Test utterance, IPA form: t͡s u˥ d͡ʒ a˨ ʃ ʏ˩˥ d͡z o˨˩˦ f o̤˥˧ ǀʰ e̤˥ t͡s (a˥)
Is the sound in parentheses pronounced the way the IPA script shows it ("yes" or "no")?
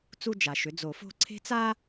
yes